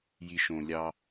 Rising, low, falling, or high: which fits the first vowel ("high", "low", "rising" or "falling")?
low